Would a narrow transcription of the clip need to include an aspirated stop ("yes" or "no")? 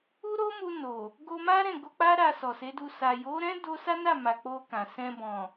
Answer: no